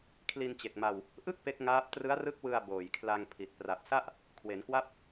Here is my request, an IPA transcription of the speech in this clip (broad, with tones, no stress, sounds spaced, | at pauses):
kʰ l i˧ n t͡ɕ e˨˩ k̚ m a˧ w | ʔ ɯ˥˩ k̚ p e˦˥ k̚ ŋ aː˦˥ p̚ t r ɯ˦˥ a̯ r ɯ˦˥ k̚ w ɯ˧ a̯ b oː˨˩ j kʰ l a˧ ŋ pʰ i˨˩ t̚ p r a˨˩ p̚ s a˥˩ ʔ | kʰ w e˩˦ n k w a˥˩ p̚